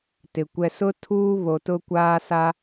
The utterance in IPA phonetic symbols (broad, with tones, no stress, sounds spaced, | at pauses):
t ɪ˨ kʷ ɛ˨ s ʊ˦ tʰ uː˦ β o˨ t ʊ˦ kʷ aː˦ s a˦